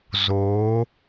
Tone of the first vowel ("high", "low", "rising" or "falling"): rising